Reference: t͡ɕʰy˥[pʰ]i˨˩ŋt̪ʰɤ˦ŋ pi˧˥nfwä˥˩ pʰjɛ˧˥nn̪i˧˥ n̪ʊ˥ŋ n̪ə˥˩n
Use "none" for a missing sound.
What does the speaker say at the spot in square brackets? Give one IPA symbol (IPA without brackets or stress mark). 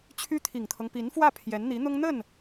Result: t̪ʰ